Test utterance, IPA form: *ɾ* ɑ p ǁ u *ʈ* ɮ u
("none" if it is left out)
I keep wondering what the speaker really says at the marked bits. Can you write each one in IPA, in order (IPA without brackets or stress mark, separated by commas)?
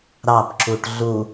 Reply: ɾ, ʈ